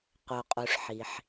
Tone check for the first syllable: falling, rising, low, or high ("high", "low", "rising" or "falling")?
low